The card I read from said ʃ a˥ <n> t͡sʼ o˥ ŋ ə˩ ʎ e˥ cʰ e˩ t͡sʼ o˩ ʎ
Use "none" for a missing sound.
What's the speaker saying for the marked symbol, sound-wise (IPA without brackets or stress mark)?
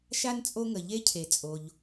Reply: n